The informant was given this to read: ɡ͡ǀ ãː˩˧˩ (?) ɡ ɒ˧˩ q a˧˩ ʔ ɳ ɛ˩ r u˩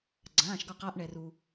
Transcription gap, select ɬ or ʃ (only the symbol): ʃ